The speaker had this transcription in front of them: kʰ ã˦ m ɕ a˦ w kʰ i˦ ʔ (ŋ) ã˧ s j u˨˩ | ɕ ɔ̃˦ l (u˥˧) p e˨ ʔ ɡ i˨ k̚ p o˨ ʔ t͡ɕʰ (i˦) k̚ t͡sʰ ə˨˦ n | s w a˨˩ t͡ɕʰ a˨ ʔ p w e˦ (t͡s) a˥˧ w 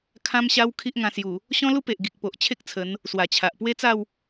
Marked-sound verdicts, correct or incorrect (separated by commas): correct, incorrect, incorrect, correct